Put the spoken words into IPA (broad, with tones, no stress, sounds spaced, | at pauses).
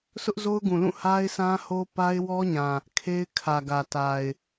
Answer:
s ʊ˦ ʔ z o˦ ʊ̯ ɡ ũ˨ l ũ˦˨ h a˦ ɪ̯ sʰ ã˦ h o˦ p a˦ ɪ̯ w ɔ˦ ɲ ã˨ | kʰ e˦ ɪ̯ kʰ ä˨ ɡ ä˨ t a˨ ɪ̯